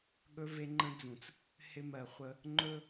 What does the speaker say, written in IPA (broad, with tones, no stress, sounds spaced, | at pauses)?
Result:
ɠ ɵ˦ v e˦ ŋ͡ǃ ə̃˦ d͡z ũ˨ t͡s | h ɪ˦ m ɜ˨ χʷ ə˦ | ŋ͡ǃ ɵ˦